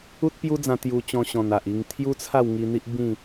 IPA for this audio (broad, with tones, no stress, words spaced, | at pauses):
u˦t̚pju˦d͡zã˧ t̪ju˧t͡ɕɔ̃˧ɕɔ̃˨˩n a˨ʔi˧ŋ t̪ʰju˦t͡sʰa˥˧wŋi˧n̪i˦ʔ bĩ˥˧